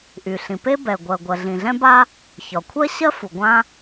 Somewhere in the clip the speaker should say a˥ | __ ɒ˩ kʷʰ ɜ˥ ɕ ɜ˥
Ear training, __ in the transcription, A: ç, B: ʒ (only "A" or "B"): A